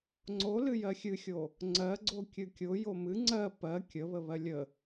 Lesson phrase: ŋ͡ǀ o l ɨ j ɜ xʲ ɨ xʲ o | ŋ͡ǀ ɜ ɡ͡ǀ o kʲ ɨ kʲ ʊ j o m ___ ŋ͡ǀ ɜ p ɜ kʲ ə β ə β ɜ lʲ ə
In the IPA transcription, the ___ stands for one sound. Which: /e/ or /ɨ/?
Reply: ɨ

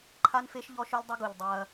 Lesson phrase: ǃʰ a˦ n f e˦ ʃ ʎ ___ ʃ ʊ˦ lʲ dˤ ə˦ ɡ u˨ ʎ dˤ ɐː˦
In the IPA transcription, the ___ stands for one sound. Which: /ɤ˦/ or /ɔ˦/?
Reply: ɔ˦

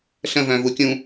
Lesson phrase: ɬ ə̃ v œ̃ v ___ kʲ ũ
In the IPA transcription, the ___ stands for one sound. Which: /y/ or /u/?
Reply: u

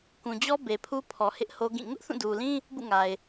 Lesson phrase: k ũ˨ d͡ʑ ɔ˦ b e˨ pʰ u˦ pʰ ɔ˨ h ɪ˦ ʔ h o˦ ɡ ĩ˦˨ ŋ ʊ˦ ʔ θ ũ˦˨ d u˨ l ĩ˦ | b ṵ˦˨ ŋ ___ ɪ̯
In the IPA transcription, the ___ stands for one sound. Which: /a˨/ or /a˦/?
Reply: a˨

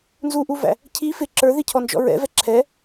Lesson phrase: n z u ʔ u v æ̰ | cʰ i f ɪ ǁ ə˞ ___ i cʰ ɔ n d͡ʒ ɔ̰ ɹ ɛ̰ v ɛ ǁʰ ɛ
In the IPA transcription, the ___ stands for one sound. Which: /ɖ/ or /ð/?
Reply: ð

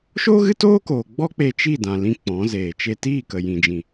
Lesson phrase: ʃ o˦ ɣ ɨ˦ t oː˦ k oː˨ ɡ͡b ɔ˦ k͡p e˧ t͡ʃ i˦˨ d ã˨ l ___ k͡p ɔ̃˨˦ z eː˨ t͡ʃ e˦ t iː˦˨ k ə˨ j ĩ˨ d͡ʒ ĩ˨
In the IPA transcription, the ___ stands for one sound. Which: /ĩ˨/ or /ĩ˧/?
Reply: ĩ˧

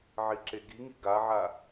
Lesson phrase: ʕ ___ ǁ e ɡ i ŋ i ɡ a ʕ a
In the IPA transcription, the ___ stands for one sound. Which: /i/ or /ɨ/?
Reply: i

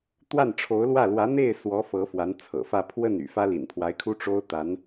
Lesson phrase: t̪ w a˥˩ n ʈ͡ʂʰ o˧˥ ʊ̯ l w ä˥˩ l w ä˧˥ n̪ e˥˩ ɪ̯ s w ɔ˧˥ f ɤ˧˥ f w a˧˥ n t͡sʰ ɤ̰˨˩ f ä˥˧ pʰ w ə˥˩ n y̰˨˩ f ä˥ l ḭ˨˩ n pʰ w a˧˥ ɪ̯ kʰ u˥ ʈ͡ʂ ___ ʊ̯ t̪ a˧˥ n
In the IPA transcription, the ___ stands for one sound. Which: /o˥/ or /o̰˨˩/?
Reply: o˥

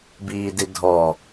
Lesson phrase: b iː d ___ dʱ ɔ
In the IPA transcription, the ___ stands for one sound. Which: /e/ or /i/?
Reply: i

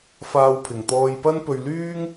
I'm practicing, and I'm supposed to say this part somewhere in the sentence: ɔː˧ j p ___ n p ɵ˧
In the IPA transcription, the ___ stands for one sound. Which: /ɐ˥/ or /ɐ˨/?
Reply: ɐ˥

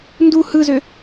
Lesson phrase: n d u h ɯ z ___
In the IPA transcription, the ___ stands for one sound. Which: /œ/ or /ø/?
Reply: ø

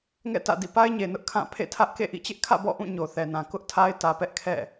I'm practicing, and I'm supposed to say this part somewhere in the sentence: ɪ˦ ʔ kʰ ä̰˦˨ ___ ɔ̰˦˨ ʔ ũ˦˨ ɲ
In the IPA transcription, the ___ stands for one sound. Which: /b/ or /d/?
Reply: b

